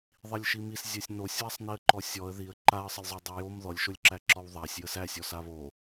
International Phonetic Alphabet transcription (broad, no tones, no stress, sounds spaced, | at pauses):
ðˤ i lʲ ʃ i m i s zʲ æ sʲ n o sʲ w a sˤ n i ə̯ ǃ ɔ sʲ ɔ ə̯ ð i ə̯ ǃ a ə̯ sˤ ə lʲ zˤ o dˤ æ j o m ð ɔ lʲ ʃ o lʲ ǁ æ ǁ ɔ w ðˤ a sʲ j ə s æ sʲ ɔ s a β o